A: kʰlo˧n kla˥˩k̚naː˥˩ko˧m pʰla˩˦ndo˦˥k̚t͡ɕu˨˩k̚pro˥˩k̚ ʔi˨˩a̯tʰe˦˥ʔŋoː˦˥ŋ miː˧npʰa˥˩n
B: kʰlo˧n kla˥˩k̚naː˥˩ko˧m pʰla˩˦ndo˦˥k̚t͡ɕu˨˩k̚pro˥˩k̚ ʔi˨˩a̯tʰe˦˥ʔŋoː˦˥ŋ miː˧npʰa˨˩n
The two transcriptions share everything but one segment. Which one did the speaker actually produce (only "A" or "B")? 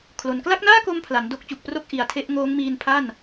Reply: A